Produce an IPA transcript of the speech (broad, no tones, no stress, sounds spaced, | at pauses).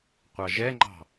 qʷ ɑ ʒ ɛ ŋ͡ǃ ɑ̤